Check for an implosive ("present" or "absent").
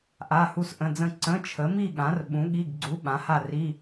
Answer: present